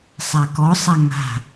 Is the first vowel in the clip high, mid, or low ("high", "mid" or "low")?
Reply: low